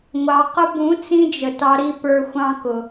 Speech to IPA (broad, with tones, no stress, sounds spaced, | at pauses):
ŋʷ ɑ˧ q ʊ˦ b ũ˨˦ t͡s ĩ˧ d͡ʒ ə˨ t ɑ˧ ɾ i˧ p ə˞˧ xʷ ɑ̃˦ k ʊ˧